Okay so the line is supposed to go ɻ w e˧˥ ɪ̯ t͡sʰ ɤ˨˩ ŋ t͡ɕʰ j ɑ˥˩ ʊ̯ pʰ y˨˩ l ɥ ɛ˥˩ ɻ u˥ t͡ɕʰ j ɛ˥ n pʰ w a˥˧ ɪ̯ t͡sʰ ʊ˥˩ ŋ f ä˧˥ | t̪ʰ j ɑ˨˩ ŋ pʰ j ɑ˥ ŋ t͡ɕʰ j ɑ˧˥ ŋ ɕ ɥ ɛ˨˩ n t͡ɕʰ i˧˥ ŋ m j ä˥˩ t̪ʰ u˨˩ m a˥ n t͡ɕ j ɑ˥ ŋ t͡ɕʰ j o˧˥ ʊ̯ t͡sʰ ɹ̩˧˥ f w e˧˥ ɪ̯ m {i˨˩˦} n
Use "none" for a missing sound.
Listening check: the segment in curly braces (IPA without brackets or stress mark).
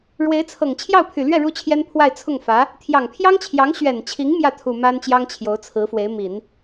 i˨˩˦